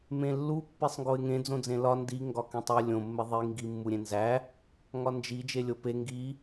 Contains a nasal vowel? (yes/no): yes